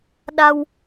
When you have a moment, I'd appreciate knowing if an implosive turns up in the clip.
yes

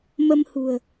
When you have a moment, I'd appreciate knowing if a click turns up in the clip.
no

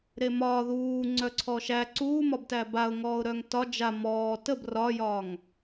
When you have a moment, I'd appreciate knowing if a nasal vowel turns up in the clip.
no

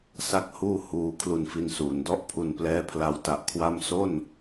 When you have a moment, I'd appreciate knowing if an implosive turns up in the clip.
no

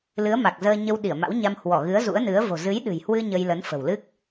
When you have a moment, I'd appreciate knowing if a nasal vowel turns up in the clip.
no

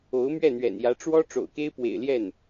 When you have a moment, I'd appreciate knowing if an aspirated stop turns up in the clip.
no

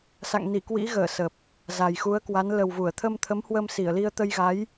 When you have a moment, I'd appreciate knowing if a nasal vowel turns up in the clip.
no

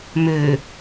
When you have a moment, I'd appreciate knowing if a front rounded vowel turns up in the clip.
yes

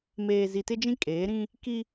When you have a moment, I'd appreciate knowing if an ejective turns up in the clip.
yes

